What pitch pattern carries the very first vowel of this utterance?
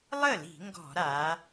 falling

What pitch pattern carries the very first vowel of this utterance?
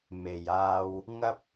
low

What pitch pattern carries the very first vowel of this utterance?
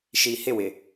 low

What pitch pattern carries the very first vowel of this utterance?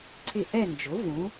falling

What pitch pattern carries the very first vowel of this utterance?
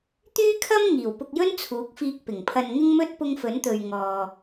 high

